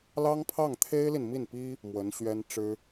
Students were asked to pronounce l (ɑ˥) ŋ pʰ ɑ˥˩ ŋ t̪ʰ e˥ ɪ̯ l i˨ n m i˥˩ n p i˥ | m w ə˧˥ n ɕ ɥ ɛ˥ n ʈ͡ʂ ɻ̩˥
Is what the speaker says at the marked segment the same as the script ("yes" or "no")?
yes